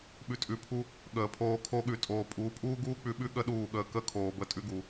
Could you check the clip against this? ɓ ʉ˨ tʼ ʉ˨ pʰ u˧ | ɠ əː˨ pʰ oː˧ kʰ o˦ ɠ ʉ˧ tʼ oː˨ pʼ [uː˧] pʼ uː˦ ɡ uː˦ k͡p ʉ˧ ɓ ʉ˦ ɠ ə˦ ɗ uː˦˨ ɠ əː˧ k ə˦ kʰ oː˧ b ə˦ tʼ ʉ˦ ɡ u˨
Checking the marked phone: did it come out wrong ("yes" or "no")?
yes